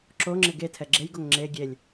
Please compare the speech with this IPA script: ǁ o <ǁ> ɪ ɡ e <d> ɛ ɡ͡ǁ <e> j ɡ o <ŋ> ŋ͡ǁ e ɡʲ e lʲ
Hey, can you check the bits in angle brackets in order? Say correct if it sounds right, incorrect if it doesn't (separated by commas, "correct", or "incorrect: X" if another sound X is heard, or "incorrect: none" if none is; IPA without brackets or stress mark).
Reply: incorrect: ŋ͡ǁ, incorrect: tʰ, correct, correct